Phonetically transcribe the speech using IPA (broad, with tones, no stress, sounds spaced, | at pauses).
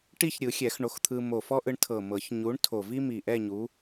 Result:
ʈ i˥˧ ç ɾʲ ɯ˨˩˦ xʲ ɛ˨˩˦ x ɳ o˨˥ x t̪ʰ ɯ˧ m o˨˩ f ɔ˥ ʔ ɯ˧ ɳ tʰ ɤ˨˩ m ɤ˨˩˦ ç ɲ u˨˥ ɳ tʰ o˨˩ v i˥ m i˨˩ ʔ ɛ˥˧ ɲ u˨˥